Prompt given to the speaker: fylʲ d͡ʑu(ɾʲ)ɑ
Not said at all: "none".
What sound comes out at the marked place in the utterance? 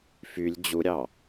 ɾʲ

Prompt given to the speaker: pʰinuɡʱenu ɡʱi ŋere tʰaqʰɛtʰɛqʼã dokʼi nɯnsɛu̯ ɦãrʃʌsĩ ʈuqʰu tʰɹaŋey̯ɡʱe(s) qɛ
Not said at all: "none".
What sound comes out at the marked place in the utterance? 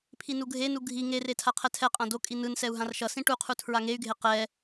none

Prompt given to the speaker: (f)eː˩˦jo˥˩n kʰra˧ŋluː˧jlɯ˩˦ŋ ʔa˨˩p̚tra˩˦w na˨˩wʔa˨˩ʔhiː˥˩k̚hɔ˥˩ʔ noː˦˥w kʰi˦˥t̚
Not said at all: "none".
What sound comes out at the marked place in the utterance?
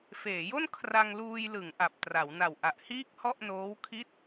f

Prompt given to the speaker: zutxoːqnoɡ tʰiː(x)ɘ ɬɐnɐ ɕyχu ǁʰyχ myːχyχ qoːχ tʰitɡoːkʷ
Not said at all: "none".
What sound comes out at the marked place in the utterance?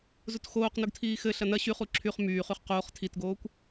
x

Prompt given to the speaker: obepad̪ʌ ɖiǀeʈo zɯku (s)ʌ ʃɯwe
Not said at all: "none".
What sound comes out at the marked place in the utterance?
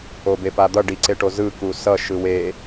s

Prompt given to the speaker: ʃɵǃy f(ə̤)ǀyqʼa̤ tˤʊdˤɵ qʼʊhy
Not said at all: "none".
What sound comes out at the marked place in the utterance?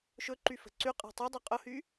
ə̤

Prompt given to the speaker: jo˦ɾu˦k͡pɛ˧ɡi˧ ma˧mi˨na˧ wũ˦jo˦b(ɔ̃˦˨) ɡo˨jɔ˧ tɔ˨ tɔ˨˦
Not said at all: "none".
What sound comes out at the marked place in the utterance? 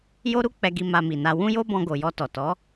ɔ̃˧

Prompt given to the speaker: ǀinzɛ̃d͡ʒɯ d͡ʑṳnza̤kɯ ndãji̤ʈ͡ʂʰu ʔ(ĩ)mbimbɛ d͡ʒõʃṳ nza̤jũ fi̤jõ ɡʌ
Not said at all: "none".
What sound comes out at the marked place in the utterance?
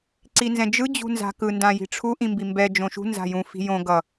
ĩ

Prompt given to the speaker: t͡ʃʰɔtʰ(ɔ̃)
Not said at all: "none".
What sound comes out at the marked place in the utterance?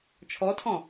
ɔ̃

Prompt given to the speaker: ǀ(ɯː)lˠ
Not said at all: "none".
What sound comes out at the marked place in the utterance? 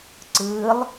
ɯː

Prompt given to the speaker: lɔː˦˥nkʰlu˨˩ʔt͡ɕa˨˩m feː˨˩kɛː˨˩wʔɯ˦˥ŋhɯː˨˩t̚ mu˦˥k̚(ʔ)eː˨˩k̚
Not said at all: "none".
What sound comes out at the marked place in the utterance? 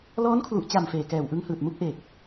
ʔ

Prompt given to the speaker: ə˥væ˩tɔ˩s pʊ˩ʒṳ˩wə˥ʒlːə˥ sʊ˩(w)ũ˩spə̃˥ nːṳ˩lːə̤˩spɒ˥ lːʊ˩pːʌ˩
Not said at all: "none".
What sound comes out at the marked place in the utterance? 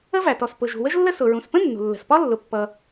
ɹ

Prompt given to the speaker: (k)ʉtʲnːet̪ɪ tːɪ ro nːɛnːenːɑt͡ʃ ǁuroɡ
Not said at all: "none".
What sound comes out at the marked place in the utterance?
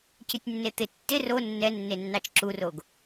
c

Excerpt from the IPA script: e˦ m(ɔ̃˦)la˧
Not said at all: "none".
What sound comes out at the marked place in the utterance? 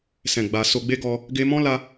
ɔ̃˦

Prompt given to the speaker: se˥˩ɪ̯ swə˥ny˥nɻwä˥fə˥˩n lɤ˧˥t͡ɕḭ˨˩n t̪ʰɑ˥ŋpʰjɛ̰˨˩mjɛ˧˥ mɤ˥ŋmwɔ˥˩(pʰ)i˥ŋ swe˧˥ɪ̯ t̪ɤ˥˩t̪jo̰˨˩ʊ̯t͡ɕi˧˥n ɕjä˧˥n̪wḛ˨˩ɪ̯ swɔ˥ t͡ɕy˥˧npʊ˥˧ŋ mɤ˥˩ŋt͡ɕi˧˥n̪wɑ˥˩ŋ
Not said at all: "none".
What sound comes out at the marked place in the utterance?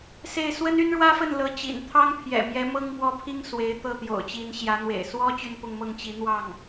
pʰ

